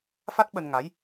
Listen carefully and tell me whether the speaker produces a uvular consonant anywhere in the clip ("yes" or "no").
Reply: no